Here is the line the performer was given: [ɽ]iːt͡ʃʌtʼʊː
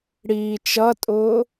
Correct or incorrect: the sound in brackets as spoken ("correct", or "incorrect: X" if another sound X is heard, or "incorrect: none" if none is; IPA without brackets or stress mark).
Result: correct